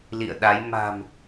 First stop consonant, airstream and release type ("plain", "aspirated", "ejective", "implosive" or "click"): implosive